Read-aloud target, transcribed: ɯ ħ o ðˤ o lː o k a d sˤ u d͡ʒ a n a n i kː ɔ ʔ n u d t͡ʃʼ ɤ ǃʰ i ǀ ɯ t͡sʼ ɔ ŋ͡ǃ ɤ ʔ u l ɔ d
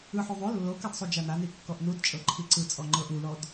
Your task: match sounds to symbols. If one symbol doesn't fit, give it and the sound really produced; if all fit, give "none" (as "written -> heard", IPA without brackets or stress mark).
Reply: none